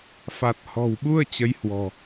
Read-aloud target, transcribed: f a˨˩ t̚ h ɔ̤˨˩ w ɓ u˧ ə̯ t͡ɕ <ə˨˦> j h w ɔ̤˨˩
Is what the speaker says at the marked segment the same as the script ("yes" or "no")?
yes